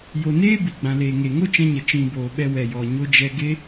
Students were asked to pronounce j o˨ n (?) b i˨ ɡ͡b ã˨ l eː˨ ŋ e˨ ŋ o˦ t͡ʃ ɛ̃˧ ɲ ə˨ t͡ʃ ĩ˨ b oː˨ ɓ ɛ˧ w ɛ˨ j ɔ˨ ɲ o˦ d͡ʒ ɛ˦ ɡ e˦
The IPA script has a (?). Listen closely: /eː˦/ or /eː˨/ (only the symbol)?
eː˦